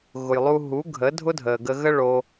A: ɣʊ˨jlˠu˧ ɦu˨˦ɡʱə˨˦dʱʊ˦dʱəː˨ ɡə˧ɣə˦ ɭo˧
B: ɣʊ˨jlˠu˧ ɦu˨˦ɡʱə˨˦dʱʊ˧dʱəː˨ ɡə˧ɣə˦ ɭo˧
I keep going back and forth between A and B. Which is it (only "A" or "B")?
A